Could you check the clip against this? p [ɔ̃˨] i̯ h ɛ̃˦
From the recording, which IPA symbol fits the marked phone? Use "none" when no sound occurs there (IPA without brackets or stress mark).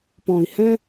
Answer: ɔ̃˨